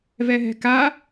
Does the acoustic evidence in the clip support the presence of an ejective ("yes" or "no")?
no